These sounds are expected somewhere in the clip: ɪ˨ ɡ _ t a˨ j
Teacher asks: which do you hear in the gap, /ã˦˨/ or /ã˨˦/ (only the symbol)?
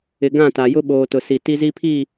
ã˦˨